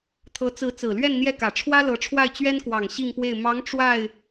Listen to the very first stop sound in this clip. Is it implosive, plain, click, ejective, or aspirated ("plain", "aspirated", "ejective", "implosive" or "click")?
aspirated